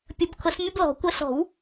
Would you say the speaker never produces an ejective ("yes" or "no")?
yes